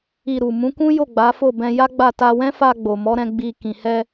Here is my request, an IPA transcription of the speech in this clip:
i˧ɾu˨ mũ˨˦kũ˦jo˦˨ ɡ͡ba˨˦fo˦˨ bɛ̃˧ja˦ɡ͡ba˦˨ ta˧wɛ̃˦fa˧ ɡ͡bo˨mɔ˨˦ɾɛ̃˧ ɡ͡bi˧ kĩ˨hɛ˧

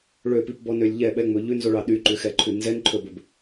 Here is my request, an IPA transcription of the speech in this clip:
ɭøpipbɔnølʲ ʎɛɓɛŋ͡mɵ ʎʉnzoɭɑ ɗyǃʉxɛǃʰʉ nzɛnǃʰɵbɵb

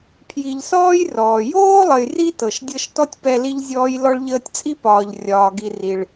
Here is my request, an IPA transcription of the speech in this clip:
pʰji˨ʎsɔː˥jrɔː˩ joː˥lˠə˨jri˦tɤ˩ʃ dʲɤ˦ʃtɔ˥tʲ pɛ˦li˥ʎzʲɔː˥j lɔ˦ɭʎəː˦tʲt͡sʼi˥ pɒː˩ʎ rʲɒː˨ɡi˨ri˩ɭ

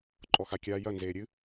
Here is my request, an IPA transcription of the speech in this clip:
ǃʼɔxakʲaːjɐ nzeːɾʲɨ

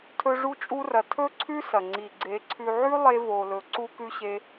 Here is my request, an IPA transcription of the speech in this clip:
tʰɵ˧ʐu˧t͡ʃʼu˧rɐ˨ tʰɵ˦ ǀʰʉ˦sɐ˨ ŋ͡ǀi˨ɡ͡ǀe˨˦ǀʰʉ˧ʕʉ˦ lˠe˦ vo˧lɵ˧ ǀu˦kʉ˦ɕe˦

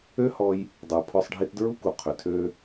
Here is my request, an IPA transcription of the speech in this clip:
ø˦hɔ˧j | dˤə˞˨ pʰɔ˧sˤɖʱi˧tdɹu˦ku˨ qʰʏ˨tʰø˦

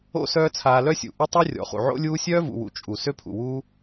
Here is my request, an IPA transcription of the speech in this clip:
o̰˦ sœː˦t͡sʰaː˧ lœ˦sʲṵ˨ ʔʏ˦tˤi˦ rʲɔ̰˨χṵ˨ʕo̰˦lʲuː˦ sʲœː˦vṵ˨wṵ˨ t͡ʃʼu˨ sø˦pʰṵ˨wuː˦

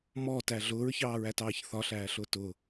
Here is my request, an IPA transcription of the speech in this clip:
mɔtæ ɮʊːɹçɑːɹætɑːç θɒɬæːɬʊː tʊ

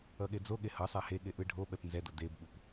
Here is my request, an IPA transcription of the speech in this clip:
ʌɠed͡zoɠe hʌsˤa heɠe ʔɯɖʱoɓɛp nzɛdo debɓup

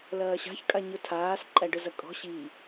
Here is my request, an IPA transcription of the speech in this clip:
lɐːɕa̤ç kʼaɲʊtʰaːsǃʼæ ɖʊzɐkʼɔ̤ ɕi

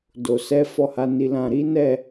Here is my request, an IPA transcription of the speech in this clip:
do˨ sɛ˨˦ fɔ˦˨ha˨˦ni˧lã˧ ɾi˦nɛ˦˨

